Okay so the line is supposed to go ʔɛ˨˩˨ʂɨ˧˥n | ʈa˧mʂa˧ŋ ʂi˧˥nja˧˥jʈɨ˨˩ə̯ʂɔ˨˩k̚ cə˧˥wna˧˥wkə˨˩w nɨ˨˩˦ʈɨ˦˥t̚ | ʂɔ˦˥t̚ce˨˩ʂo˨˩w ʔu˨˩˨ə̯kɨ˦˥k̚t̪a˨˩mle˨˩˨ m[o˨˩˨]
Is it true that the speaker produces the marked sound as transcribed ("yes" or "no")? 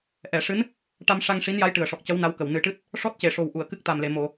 yes